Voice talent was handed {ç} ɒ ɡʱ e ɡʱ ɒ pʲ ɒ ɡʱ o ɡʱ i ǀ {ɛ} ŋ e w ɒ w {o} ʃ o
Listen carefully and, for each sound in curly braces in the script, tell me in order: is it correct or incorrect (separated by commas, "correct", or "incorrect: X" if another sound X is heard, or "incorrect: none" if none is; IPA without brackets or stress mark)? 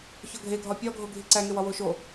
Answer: correct, incorrect: æ, correct